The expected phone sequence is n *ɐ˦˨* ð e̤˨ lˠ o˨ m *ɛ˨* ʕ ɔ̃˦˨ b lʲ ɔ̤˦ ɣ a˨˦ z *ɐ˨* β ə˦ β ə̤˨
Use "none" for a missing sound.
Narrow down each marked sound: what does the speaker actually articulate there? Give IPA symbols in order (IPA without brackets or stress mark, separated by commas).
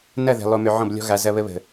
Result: ɐ˦˨, ʏ˨, ɐ˦